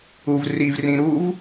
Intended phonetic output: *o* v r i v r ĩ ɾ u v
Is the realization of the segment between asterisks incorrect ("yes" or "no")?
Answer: yes